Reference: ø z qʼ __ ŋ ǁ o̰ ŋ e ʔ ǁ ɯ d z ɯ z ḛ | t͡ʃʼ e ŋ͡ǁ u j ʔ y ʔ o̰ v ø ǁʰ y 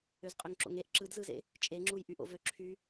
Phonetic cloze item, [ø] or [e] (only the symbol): ø